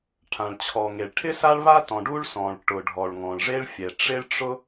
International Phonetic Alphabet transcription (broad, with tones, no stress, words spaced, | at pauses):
ʈʰã˩ɭt͡ɕʰɔ˩ŋe˩ɭ ʈʰɪ˥sa˥ɭβa˥tɔ̃˩ ɖu˥ɭ sɔ̃˩ɭʈʊ˩ ɖʱɔ˩ɭŋɔ̃˩ɭʐe˥ɭfʲɛ˩ ʈ͡ʂɪ˥ɭʈ͡ʂʊ˥